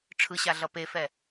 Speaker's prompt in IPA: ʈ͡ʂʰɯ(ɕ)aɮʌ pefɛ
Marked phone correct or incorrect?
correct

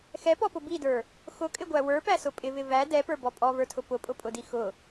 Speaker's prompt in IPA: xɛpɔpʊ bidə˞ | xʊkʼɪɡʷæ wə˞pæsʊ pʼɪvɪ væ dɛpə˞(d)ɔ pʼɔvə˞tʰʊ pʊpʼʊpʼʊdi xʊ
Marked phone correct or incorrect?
incorrect: b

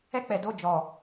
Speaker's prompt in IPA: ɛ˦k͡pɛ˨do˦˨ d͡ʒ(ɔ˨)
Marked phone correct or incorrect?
correct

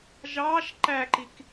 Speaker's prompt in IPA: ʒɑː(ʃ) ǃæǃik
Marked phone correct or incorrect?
correct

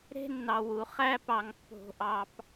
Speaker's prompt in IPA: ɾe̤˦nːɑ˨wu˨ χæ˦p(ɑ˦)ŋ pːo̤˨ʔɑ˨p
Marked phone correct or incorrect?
incorrect: ɑ˨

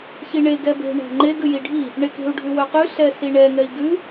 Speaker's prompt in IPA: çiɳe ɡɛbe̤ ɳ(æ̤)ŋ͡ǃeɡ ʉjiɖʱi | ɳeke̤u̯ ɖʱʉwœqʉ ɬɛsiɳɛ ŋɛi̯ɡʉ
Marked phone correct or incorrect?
correct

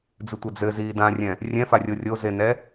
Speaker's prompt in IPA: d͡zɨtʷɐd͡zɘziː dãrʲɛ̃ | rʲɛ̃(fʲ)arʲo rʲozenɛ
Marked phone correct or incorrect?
incorrect: f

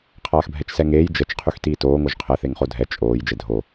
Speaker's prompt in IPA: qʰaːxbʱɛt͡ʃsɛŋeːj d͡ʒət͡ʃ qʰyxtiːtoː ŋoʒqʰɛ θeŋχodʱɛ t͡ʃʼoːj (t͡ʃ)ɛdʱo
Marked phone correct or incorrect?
incorrect: d͡ʒ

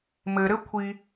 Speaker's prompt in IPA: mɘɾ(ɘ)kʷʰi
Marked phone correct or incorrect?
correct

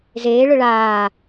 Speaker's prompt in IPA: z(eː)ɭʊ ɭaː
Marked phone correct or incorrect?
correct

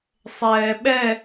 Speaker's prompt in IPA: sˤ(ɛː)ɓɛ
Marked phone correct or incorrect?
correct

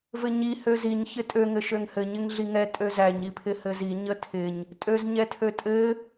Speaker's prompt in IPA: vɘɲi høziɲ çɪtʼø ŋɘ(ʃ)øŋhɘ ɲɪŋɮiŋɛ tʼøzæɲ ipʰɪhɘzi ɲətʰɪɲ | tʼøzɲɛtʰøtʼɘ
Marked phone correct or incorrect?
correct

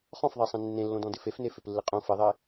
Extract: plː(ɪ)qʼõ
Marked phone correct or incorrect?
correct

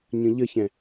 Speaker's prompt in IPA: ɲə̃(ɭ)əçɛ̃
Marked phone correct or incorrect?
incorrect: ʎ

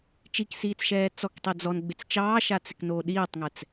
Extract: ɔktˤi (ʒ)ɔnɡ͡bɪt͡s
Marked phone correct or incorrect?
incorrect: d͡z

